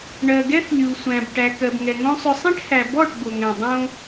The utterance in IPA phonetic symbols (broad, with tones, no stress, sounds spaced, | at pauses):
ɳ ɜ˨ ɡ ɛ˦ θ lʲ u˨ sʷ æ̃˨ b ʈ æ˨ k ɜ˨ b ŋ ɛ˨ ŋ õ˦ sˤ ʏ˧ sˤ ɛ̃˦ ʈ h æ˨ b ɔ˦˨ ʈ b o˨ ŋ ɛ̃˨ dˤ õ˦